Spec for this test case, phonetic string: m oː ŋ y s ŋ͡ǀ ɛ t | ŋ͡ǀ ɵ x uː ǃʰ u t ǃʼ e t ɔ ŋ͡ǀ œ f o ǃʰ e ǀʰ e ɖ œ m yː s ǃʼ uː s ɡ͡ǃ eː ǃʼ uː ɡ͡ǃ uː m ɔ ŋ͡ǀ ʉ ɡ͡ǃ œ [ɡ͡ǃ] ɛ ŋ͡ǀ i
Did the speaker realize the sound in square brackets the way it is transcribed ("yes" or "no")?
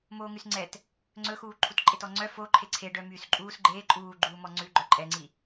no